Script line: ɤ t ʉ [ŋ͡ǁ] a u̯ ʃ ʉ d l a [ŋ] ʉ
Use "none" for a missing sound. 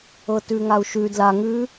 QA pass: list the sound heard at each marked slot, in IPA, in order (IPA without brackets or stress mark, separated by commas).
ŋ, ŋ